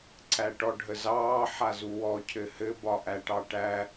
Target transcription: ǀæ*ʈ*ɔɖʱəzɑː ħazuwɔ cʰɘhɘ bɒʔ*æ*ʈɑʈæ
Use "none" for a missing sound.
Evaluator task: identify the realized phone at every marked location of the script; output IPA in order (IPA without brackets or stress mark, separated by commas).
ʈ, æ